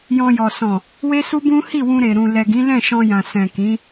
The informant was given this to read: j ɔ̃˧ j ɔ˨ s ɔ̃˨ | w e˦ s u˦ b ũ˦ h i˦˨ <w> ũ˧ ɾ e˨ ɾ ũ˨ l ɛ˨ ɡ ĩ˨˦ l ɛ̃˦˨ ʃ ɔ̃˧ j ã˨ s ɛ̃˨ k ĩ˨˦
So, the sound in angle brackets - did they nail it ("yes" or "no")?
yes